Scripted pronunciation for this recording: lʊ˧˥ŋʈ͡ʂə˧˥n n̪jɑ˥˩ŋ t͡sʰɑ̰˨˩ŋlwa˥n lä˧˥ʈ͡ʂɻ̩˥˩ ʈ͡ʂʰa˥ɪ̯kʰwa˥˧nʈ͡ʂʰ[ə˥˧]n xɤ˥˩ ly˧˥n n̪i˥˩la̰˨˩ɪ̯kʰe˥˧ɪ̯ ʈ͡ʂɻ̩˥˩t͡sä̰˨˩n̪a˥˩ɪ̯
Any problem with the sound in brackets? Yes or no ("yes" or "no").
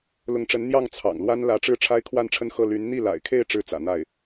no